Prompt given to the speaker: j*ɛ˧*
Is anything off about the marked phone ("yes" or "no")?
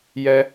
no